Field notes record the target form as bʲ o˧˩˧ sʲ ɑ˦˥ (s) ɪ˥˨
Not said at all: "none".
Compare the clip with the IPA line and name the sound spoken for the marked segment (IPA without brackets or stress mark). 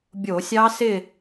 s